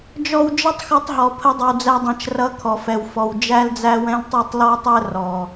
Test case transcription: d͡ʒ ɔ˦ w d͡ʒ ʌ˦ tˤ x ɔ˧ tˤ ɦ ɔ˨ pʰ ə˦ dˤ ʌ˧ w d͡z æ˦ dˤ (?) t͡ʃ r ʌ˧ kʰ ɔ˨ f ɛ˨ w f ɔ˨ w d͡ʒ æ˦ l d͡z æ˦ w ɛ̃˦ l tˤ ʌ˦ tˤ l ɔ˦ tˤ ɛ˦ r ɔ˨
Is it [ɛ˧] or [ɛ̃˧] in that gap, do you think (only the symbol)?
ɛ̃˧